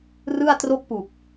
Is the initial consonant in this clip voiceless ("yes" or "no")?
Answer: no